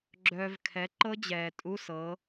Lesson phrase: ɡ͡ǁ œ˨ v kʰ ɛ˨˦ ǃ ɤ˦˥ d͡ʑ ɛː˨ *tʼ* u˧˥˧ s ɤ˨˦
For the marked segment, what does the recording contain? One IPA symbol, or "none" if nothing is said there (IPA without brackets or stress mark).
tʼ